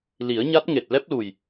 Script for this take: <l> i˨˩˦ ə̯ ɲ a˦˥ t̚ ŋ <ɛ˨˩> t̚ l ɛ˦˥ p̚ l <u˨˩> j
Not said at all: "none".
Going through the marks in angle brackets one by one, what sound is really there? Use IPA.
l, e˨˩, u˨˩

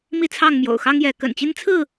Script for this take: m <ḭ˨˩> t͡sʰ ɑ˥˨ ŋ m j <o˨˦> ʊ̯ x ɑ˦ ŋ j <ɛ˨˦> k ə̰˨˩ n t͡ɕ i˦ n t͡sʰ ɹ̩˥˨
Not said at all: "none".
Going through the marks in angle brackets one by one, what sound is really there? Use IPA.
i˥˨, o̰˨˩, ɛ˨˦

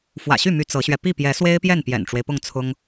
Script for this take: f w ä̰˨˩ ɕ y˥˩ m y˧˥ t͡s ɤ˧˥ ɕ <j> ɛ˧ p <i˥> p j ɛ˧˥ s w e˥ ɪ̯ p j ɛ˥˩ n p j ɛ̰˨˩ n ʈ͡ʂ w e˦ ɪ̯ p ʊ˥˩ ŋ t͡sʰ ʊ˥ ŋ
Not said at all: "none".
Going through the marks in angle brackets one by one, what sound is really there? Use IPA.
ɥ, i˥˩

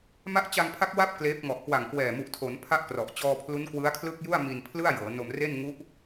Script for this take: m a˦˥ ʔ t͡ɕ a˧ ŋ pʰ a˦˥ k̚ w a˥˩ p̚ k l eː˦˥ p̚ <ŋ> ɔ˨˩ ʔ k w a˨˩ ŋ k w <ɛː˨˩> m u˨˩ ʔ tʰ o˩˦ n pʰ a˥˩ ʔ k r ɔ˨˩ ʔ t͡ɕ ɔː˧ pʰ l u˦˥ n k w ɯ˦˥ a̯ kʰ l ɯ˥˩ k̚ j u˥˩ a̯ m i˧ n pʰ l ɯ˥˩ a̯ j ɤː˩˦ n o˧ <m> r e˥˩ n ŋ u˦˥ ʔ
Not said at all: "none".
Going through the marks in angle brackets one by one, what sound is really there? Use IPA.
ŋ, ɛː˨˩, m

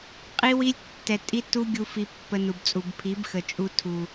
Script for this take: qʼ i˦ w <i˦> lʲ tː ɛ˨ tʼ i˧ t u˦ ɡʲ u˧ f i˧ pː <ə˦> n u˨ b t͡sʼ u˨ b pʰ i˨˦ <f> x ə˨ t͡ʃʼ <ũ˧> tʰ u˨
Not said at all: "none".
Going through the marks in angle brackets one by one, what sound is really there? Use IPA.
i˦, ə˧, b, u˧

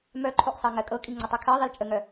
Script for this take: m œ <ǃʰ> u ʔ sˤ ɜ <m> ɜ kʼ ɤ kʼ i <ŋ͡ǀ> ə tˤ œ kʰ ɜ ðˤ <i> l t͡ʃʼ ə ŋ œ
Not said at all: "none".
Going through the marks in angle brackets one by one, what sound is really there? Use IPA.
ǃʰ, ŋ, ŋ͡ǀ, i

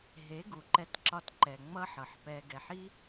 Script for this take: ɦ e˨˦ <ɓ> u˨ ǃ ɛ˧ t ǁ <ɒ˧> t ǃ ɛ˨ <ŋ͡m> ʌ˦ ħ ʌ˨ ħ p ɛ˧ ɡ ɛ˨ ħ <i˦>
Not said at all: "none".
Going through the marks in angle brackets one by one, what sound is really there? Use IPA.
ɡ, ɒ˧, ŋ͡m, i˦

